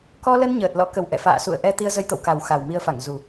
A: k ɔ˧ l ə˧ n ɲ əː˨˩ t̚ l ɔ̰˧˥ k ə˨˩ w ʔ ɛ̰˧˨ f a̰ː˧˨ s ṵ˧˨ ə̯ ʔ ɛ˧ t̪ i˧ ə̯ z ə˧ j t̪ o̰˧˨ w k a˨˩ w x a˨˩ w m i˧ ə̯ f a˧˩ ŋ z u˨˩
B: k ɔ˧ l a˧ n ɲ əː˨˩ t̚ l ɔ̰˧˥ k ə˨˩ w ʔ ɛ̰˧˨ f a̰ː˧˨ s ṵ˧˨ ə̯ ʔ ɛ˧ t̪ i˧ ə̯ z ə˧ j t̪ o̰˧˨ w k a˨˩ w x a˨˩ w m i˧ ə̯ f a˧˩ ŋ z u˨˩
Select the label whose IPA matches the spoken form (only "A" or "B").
A